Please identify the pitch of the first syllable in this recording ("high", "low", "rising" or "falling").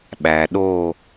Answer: low